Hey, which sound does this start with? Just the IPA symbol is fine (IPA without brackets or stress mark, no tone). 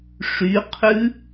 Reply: ʂ